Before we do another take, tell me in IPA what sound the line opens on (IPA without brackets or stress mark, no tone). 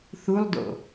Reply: θ